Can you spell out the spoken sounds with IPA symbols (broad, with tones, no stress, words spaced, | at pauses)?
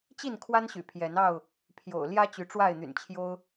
t͡ɕi˥˨nkʰwa˦nɕy̰˨˩ pʰjɛ˨˦nɑ˥˨ʊ̯ | pʰjo̰˨˩ʊ̯ ljä˦ t͡ɕy˨˦ʈ͡ʂwa˥˨ɪ̯n̪y̰˨˩nt͡ɕʰjo˦ʊ̯